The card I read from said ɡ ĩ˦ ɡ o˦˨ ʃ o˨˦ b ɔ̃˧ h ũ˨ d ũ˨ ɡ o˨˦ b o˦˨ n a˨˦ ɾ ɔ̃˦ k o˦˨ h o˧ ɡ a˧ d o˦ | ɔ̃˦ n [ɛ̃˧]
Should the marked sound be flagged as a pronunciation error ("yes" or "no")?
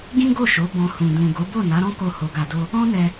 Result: yes